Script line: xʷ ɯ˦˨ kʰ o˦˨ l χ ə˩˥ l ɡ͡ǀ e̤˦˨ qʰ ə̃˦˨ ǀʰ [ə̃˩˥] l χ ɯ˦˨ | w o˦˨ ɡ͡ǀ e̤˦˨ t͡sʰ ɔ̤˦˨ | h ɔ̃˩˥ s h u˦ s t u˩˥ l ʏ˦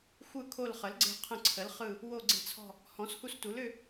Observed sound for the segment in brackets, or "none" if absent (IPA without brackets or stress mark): ə˩˥